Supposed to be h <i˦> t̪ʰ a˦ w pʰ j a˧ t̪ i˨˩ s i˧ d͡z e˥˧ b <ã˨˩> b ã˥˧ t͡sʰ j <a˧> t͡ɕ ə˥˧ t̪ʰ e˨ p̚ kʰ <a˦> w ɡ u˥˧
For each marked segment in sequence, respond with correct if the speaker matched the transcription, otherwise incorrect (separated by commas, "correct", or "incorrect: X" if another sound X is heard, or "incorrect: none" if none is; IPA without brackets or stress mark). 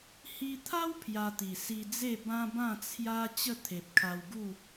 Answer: incorrect: i˧, incorrect: ã˦, incorrect: a˦, incorrect: a˧